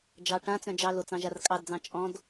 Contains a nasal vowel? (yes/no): yes